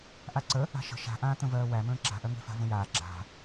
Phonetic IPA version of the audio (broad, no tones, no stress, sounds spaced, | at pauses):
ʔ a ǀ ə | a̤ ʃ ə̤ ʃ a̤ ʔ ãː t̪ ə̃ v ɜː w æ m ə̃ː ǁ a̤ ʔ ɜ ŋ e̤ f a̤ v ə̃ j aː ɡ͡ǁ a̤